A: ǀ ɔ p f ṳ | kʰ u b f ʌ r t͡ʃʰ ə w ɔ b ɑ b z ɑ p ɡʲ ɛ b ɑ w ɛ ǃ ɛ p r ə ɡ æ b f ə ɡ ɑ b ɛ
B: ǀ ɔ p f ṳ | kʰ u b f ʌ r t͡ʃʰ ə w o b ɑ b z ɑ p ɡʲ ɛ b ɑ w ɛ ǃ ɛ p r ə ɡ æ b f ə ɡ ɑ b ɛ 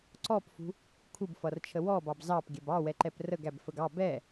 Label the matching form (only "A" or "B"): A